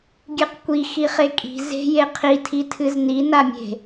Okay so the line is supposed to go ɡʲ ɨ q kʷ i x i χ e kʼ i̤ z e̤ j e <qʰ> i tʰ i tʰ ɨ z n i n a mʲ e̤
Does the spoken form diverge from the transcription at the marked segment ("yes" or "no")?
no